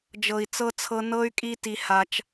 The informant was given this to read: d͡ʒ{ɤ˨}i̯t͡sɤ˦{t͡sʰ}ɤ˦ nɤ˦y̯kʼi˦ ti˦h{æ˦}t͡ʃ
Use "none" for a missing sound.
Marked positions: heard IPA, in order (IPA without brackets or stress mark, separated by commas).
ɤ˨, t͡sʰ, a˦